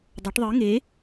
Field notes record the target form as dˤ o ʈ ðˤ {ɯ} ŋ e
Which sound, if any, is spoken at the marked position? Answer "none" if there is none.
ɯ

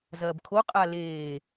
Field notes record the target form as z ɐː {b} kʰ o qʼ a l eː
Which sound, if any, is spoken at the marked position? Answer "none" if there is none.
b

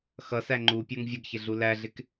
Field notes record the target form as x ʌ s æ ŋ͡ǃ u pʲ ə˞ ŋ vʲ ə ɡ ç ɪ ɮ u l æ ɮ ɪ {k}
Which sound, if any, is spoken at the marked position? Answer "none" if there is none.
k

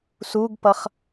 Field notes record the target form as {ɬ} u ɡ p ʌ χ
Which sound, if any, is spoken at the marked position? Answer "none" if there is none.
s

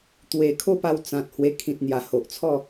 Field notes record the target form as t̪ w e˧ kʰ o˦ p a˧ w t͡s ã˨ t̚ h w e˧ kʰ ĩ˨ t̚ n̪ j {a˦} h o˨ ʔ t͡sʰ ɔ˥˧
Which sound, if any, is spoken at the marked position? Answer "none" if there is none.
a˨˩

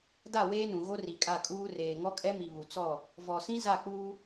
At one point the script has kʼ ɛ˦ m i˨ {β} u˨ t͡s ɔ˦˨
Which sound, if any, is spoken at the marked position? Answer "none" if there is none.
β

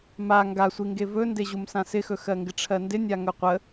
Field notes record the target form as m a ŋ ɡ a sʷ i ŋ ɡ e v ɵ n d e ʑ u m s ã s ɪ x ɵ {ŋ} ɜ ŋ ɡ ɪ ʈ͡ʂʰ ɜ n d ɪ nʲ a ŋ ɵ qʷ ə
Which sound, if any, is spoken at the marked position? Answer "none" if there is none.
x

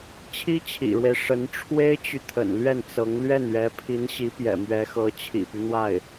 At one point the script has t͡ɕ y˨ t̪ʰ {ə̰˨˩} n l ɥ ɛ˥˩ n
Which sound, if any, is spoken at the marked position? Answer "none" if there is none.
ə̰˨˩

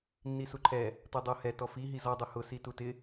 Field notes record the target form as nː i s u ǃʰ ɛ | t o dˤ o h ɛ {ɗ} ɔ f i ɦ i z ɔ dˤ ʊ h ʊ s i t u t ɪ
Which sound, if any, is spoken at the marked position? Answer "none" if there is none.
t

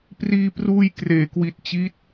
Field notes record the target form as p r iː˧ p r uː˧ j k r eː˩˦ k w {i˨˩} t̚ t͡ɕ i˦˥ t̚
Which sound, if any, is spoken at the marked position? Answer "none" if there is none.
i˨˩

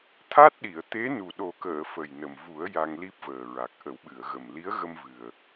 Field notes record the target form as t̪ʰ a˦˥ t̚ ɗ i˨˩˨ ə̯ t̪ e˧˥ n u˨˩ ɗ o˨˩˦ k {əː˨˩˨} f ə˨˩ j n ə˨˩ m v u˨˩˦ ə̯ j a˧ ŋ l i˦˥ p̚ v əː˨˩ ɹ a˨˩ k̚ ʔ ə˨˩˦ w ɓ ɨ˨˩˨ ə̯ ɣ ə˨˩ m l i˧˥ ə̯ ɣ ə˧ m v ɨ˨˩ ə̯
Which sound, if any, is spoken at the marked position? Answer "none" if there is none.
əː˨˩˨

